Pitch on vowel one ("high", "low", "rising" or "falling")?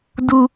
low